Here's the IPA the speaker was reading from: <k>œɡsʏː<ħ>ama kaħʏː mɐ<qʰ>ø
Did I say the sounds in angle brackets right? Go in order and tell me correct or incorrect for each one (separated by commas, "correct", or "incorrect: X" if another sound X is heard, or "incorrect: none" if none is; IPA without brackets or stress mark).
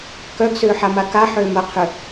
correct, correct, correct